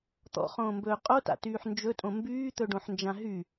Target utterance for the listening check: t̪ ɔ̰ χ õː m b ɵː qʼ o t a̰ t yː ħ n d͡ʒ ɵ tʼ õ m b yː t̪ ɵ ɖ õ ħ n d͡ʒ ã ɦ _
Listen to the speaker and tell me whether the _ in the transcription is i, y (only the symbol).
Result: y